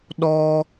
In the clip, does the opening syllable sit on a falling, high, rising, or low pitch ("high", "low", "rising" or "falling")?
high